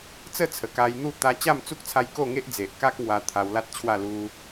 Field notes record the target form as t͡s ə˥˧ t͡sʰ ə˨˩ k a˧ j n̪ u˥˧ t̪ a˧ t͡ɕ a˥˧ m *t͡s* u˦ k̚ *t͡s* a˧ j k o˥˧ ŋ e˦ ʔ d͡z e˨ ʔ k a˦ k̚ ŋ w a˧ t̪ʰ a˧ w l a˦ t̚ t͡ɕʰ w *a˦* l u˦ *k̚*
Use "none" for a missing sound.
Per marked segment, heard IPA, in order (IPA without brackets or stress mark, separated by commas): t͡s, t͡sʰ, a˥˧, none